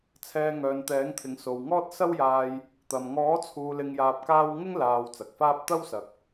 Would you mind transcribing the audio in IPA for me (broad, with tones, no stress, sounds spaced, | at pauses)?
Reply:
t͡sʰ ɛː˧ ŋ œː˨ n t̪ ɛː˨˥ ŋ t̪ʰ ɪ˨˥ ŋ s o˨ w ŋ ɔː˥ t̚ s ɐ˥ w j aː˧ j | t̪ ɐ˨ m ŋ ɔː˨˥ t͡sʰ uː˨ l ɪ˧ ŋ j aː˧ p̚ k aː˥ w ŋ ɪ˥ ŋ l aː˨ w t͡s ɐ˨ k̚ f aː˥ p̚ t̪ ɐ˥ w s ɐ˨ k̚